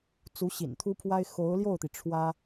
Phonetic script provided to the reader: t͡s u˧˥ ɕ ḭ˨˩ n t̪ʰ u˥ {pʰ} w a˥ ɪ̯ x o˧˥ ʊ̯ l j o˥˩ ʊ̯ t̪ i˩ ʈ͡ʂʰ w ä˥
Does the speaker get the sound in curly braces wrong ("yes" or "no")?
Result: no